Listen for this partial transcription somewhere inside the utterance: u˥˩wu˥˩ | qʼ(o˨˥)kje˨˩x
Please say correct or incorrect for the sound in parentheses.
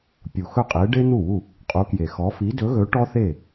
incorrect